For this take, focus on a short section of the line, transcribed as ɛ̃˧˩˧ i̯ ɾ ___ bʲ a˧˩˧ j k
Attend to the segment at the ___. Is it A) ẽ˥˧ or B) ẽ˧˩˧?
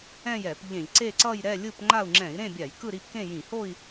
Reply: A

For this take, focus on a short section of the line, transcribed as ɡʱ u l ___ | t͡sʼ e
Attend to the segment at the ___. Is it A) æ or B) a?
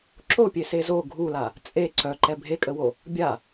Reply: B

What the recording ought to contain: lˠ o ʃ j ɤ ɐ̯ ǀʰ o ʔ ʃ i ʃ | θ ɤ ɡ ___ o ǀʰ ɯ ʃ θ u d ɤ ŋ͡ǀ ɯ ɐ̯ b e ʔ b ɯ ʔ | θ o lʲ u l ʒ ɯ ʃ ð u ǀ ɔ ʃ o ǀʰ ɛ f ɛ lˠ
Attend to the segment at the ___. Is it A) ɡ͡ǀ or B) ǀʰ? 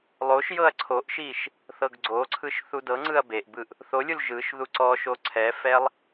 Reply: A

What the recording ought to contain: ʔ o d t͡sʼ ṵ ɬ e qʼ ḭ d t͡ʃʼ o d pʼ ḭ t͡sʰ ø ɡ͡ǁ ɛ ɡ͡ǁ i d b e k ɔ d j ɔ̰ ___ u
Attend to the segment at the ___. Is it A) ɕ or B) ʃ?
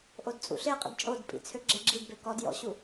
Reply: A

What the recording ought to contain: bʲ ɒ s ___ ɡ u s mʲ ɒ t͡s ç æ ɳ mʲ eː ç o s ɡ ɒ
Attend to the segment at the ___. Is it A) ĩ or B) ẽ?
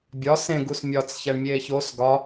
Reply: B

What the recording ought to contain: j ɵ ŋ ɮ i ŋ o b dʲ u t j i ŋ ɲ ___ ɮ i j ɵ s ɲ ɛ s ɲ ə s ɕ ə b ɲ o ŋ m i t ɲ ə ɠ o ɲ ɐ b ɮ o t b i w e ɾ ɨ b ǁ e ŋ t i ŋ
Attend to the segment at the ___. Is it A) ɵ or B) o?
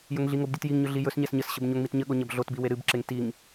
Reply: A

